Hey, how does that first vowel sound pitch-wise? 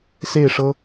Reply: falling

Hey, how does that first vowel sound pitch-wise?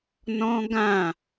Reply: high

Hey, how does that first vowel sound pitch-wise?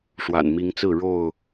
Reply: low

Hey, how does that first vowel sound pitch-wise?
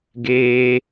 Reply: high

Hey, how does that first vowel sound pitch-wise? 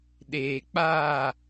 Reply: low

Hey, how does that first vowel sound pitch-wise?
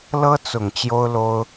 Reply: high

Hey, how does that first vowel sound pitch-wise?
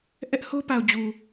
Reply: high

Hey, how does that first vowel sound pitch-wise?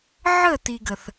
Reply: falling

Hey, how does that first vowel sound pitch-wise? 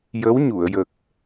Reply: rising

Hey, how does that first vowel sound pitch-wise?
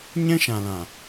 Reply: high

